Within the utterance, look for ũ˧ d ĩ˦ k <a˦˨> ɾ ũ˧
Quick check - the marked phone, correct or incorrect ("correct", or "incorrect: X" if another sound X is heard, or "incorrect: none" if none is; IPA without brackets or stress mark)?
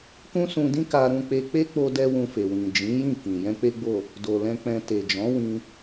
incorrect: a˧